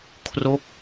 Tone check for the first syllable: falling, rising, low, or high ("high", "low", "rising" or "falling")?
falling